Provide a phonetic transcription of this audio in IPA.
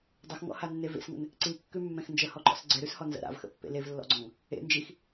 dˤ ə x ŋ ɔ̰ h a nː e v ḛ s ŋ ə̰ n | ǀ i kː ʉ mː ɛ̃ x n d͡ʒ ə h ɔ ǃ ɔ̰ s ɡ͡ǀ ɛ ɾ ʉ s h ɔ n z ə̰ ɾ a̰ v x ə̰ pː ḛ l e v lː ɔ̰ ɡ͡ǀ ɔ̃ ŋ | ḛ n d͡ʒ i x

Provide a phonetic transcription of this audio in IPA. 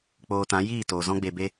k͡p oː˧ t ã˨˦ j iː˦˨ t oː˨ z ɔ̃˦ ɡ͡b e˧ b e˦

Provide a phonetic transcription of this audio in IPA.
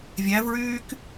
vʲ æ v ɹ yː k

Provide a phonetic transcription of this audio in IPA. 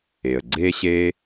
e˩ ə̯ ɡ͡ǀ eː˥ ɕ eː˥

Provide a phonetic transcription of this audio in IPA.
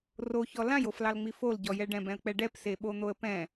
r o ç ɔ l ã j o f l ɑ l ŋ͡m i f o l ɟ ɔ j ɛ ɖ ɛ̃ b ɛ̃ ə̯ k͡p ɛ ɖ ɛ p s e ɓ o n̪ o ə̯ p ɛ̃

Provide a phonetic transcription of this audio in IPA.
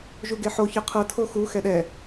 ʒ u ɡ e ħ o ç ɯ qʰ ɤ tʰ o x u x ɛ ɗ ɛ

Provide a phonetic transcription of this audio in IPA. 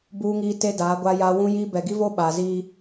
b uː˦ ŋ iː˦ t e˦ d aː˨˦ ɡʷ a˦ j aː˦ w ũ˦ j i˦ b ɛ˨ ɡ i˦ v o˦ ɓ aː˨ z i˦

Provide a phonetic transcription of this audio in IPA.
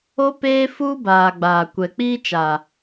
o˦ p eː˦ f uː˦ b aː˨ ɡ͡b aː˨ kʷ ɛ˨ k͡p iː˦ t͡ʃ a˨

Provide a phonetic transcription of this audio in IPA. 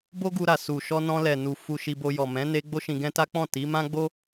b o˦ ɡ u˧ ɾ a˨ s u˨ ʃ ɔ˧ n ɔ̃˧ l ɛ˨ n u˨ f u˧ ʃ i˧ b o˧ j ɔ˨ m ɛ̃˨˦ n e˧ ɡ͡b o˦ ʃ ĩ˧ ɡ ɛ̃˦ t a˦ k͡p ɔ̃˦˨ t i˨˦ m ã˦ ɡ͡b o˦

